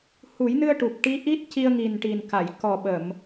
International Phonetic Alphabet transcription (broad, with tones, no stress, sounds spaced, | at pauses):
h u˨˩˦ j n ɨ˧ ə̯ ʈ u˨˩ p̚ ʈ i˧˥ ʔ i˦˥ t̚ c i˧ ə̯ ŋ i˨˩ n ʈ i˨˩ n k a˨˩˨ j k ɔ˨˩ ɓ ə˨˩˨ m